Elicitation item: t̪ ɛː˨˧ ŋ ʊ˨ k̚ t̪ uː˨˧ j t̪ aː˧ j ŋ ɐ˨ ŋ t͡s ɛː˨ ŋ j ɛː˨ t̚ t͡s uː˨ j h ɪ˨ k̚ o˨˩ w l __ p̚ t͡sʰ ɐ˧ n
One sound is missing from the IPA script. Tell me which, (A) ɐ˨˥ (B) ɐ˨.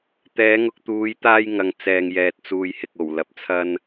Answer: B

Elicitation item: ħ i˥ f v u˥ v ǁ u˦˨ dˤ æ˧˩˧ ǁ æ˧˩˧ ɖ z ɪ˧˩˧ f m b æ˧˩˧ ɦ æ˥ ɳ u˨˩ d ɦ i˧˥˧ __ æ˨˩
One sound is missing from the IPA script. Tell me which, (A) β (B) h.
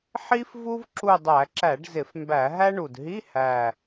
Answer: B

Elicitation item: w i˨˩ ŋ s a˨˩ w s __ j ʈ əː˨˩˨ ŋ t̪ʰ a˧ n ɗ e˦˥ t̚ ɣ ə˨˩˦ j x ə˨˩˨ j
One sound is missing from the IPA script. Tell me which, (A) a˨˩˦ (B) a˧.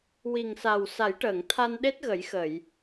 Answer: A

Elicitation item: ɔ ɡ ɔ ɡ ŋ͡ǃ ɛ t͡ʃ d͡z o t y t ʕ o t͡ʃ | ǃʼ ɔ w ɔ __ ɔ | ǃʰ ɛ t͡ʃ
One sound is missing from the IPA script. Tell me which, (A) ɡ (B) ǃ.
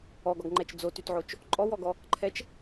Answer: A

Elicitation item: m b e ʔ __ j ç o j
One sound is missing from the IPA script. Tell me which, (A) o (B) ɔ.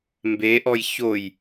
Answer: B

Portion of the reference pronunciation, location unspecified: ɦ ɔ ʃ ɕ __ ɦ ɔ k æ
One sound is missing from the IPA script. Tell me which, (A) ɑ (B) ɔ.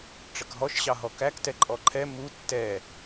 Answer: A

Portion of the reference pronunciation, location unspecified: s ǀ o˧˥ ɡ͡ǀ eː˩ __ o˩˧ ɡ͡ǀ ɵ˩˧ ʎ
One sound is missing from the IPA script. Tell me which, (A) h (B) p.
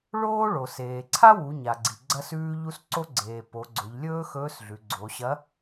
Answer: B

